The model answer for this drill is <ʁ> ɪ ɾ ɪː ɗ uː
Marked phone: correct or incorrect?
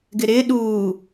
incorrect